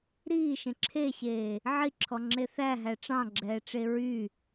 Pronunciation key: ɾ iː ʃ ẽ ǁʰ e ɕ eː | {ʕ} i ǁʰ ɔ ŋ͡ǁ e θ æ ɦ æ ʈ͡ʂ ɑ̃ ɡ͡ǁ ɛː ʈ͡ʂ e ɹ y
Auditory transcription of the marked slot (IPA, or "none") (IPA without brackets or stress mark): ʕ